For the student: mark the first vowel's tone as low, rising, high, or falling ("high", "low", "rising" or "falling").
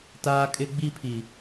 high